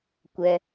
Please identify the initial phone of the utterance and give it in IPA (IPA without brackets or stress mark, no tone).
kʷ